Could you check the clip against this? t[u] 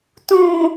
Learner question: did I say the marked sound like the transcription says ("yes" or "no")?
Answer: no